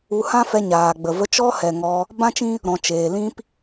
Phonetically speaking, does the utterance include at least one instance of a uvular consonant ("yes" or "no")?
no